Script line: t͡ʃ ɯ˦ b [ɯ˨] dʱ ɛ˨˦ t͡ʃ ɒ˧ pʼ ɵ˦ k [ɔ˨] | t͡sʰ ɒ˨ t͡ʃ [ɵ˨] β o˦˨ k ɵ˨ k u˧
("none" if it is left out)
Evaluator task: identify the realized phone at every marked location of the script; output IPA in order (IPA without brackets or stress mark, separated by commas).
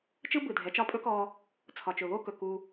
ɯ˨, ɔ˧, ɵ˨